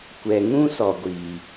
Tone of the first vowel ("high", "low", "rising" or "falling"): low